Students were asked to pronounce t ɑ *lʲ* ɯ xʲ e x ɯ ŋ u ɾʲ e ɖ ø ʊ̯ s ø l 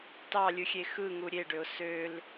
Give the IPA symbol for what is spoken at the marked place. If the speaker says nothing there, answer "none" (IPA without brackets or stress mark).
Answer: lʲ